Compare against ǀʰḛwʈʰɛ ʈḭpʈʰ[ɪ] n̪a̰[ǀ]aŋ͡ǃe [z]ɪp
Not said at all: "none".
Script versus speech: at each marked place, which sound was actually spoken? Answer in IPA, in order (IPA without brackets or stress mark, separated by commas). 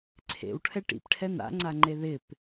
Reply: ɛ, ŋ͡ǀ, ð